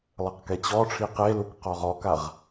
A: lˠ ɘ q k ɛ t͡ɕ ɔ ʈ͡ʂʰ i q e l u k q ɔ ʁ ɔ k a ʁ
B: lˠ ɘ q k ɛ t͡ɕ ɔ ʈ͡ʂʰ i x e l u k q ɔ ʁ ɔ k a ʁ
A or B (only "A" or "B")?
A